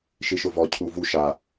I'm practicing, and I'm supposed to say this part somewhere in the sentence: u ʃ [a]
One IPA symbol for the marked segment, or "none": a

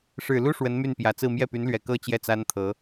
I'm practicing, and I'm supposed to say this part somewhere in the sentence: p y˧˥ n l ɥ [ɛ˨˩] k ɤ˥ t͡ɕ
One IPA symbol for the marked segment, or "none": ɛ˨˩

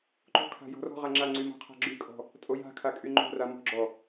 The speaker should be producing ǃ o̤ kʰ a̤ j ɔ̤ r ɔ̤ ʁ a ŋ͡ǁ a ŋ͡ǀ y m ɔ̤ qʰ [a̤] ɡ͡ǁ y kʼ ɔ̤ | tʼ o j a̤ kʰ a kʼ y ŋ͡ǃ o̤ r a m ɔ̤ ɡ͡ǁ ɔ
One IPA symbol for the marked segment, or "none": a̤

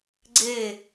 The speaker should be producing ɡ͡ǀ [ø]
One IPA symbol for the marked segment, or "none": e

